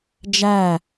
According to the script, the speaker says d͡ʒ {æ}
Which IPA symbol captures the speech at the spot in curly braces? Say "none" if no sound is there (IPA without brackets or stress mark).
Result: æ